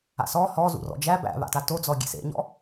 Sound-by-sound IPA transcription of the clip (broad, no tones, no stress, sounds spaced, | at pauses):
a̰ s ɔ h ɔ z ṵ r ɔ̰ d͡ʒ æ b æ̰ β a̰ t a t o d͡z ɔ ɡʲ ḛ s ḛ ɲ ɔ̰